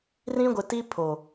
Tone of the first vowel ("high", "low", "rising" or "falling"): high